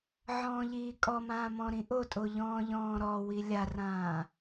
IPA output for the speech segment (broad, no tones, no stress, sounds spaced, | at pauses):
ʕ ɔ̃ː ʎ iː kʼ ɔ m ãː m ɔ̃ ɾ ĩ ʔ o tʼ o ʎ ɔ̃ː ʎ ɔ̃ː ɾ ɔ w i lʲ a r ãː